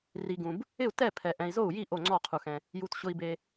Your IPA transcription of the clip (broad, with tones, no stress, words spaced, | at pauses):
ri˨ɡũ˨b | ɪ˥˩u̯ tɛ˥˩ pʰɛ˨ ʔɛ̃˨i̯zo˥˩u̯ji˥˩ ʔo˥˩ŋ͡ǀɔ˥˩qʰu˨xɛ̃˨ | ju˨tɕʊ˨i̯be˨